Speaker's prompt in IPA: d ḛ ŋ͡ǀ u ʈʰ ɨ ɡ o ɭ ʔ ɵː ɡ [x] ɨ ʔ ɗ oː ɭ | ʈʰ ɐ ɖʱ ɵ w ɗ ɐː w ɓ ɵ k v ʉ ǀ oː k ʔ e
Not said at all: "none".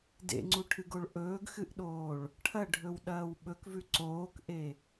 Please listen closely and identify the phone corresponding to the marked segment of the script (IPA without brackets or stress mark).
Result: x